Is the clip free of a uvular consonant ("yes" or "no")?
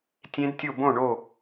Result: yes